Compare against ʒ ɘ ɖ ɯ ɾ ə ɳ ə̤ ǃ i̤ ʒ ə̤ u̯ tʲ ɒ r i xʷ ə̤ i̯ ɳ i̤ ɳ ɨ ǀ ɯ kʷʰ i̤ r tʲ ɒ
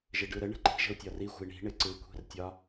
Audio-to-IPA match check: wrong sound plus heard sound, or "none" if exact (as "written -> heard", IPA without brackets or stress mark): ɨ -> ɪ